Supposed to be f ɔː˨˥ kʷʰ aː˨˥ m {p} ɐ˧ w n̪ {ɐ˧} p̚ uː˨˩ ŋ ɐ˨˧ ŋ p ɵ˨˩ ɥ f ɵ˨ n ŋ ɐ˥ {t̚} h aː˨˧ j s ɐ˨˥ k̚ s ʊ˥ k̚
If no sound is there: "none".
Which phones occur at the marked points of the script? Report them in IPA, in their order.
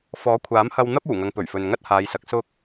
h, ɐ˥, t̚

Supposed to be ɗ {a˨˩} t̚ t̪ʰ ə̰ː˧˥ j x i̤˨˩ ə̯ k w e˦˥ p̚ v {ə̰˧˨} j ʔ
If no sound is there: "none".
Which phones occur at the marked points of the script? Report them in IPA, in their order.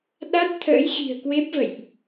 a˦˥, ə̰˧˨

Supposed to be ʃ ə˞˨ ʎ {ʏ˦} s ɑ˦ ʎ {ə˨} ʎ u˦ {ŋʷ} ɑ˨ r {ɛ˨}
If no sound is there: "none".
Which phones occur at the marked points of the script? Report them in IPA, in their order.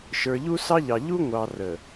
u˦, ɑ˨, ŋʷ, ə˨

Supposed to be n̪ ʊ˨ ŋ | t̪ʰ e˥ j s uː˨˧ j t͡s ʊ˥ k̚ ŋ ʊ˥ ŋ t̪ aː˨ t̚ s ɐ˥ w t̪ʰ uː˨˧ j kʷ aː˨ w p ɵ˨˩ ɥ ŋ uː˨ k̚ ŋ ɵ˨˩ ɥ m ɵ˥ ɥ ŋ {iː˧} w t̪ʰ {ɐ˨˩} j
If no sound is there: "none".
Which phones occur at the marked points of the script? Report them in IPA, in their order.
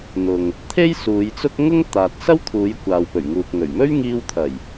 iː˧, ɐ˨˩

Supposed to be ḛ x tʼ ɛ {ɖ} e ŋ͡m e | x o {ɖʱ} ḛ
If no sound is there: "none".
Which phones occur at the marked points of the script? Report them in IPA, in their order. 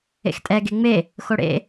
ɡ, ɽ

